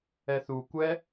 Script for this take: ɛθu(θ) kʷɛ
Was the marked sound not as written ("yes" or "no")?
yes